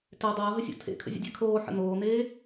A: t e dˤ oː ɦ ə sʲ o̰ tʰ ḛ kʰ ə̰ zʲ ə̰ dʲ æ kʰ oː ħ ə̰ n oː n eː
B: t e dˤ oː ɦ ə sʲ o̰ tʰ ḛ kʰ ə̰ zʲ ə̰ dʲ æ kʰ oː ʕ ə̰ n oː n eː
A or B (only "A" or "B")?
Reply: A